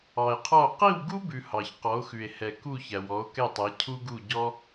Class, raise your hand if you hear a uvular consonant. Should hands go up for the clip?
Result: yes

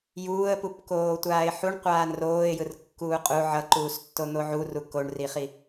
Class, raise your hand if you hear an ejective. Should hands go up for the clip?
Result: yes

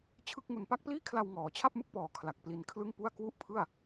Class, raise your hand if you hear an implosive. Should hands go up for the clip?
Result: no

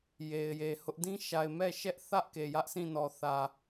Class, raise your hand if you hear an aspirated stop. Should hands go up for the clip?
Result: no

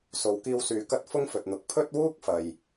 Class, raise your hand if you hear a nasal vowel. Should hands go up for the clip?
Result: no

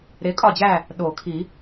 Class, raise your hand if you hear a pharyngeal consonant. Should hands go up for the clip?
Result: no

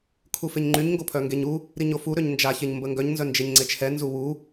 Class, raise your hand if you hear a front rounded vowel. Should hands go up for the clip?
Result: yes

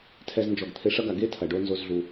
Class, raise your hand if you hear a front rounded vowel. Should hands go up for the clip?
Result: no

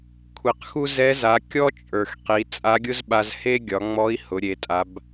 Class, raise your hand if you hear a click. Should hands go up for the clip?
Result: no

